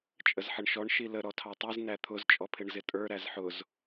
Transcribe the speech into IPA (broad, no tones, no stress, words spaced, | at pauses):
t͡ʃʼəzħəɳʃɔɳ ʃilə ɾɔtʰɑtˤiz næt̪ʰʊz t͡ʃʼɔpʰɪɳzɪtʼə˞ ɾæzħʊz